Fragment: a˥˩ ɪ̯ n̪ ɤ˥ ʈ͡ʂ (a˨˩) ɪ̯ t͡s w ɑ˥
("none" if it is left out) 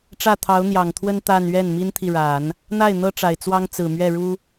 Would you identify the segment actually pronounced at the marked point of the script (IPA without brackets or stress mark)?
a˨˩